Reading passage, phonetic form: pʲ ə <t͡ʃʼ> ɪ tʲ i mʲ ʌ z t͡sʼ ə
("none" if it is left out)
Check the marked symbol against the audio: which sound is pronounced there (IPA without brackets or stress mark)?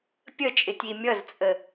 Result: t͡ʃʼ